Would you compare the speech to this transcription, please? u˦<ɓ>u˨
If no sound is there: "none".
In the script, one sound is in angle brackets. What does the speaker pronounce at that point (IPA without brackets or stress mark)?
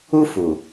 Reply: f